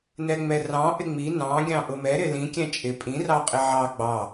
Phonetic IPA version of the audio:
n ɛ ŋ͡m ɛ r ɑ̃ ʔ ɪ ŋ͡m i n ɑ̃ ɡʲ ɑ̃ ʔ ʊ m ɛ ɾ ɪ l ĩ kʲ ɛ̃ t͡ʃʼ ɪ pʼ ĩ r ɑ qʼ ɪ ʕ ɑ ɡ͡b ɑ

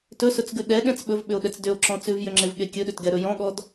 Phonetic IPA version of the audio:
t ɵ s ɵ t͡s ɡ ʉ ɗ ɛ ɠ ɛ̃ t͡s ɓ ɵ v ɓ ʏ o̯ ɗ ɛ t͡s d ʏ o̯ ǁ ɔ̃ t͡s ʉ v j ʏ ŋ͡ǁ e v ɠ e kʲ ɵ ɗ ʏ t ɡ ɛ ɾ ɵ j ɔ̃ ɠ ɔ d

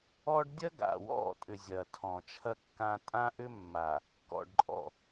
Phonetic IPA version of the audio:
ɔ˦ ɖ dʲ ɐ˦ ɡ a̰˨ w ɔ̰˦˨ tʼ ʏ˨ zʲ ɐ˨ tʰ ɔ̃˨ t͡ʃʰ ɐ˦ kː ã˦ tʼ ã˦ ʔ ʏ˦ mː a˨ | k ɔ̰˨ ɖ ǃʼ ɔ̰˨

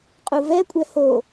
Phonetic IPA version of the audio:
qʼ u v ɛ kʷʼ ɛ h o

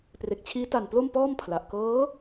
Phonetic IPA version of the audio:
p r e˨˩ k̚ t͡ɕʰ iː˦˥ t a˨˩ n p l o˥˩ m p ɔː˥˩ m pʰ l a˨˩ ʔ k ɤː˦˥

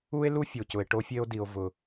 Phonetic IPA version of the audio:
u˦ e̯ l u˦ fʲ o˨ c ʊ˨ e̯ ʈ o˦ fʲ e˦ o̯ d i˨ o̯ v ʊ˨

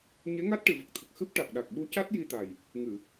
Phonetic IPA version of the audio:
ɲ e˧˥ ŋ a˦˥ t̚ ʈ ɨ˨˩˨ v ə˨˩ k̚ t̪ʰ ə˨˩ k̚ x ɨ˦˥ p̚ ʈ a˨˩ k̚ ɗ a˨˩ k̚ ɓ u˧˥ c a˦˥ t̚ j i˧ t̪ a˨˩ j | ŋ ɨ˨˩˨

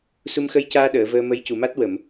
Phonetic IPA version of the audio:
s u˧ m x ə˧˥ j c aː˧ ɗ əː˨˩˨ v əː˧ m ə˧˥ j c u˨˩˨ m a˦˥ t̚ w ə˨˩˨ m

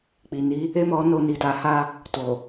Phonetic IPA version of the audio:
k͡p i˨ n i˨˦ | e˦ m ɔ˧ n o˧ n i˨ t a˨ h a˧ | t o˨

